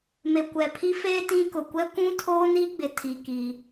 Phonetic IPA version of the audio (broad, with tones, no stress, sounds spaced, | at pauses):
m e˨ kʷ ɛ˨ pʰ i˦ f eː˦ t ĩ˦ k ʊ˨ kʷ ɛ˦ kʷ ũ˦ tʰ oː˦ n i˦ ɡ͡b ɪ˨ tʰ i˦ k iː˦